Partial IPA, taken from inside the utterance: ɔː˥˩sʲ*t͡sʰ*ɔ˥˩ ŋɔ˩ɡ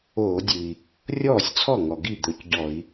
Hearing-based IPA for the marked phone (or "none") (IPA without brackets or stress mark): t͡sʰ